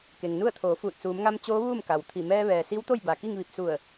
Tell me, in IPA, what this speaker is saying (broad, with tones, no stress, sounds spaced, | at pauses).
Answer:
k e˩ ŋ n u˥˨ ə̯ t̪ʰ oː˩˧ f uː˧˩ t̚ s uː˩˧ m ŋ a˧ m t͡ɕ oː˧˥ ʋ uː˥˨ m k a˩ w t̪ʰ i˧˩ m ɛː˧ ʋ ɛː˩ s i˧˥ w t̪ o˥˨ j b a˩ k i˥˨ ŋ ʋ i˧˩ p̚ s u˧˩ ə̯